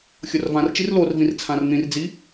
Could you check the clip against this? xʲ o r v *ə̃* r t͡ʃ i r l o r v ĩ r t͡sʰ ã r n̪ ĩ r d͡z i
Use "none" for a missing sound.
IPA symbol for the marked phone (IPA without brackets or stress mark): ã